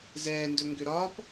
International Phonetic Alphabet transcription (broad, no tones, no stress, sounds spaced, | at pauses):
z ɛː n d ɵ ŋ ɡ ʏ ɾ ɒ p